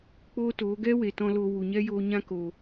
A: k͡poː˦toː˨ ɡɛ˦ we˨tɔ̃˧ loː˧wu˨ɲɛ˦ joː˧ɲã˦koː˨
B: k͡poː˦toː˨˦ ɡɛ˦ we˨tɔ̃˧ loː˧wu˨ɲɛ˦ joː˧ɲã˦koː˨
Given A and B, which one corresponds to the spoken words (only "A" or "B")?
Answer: B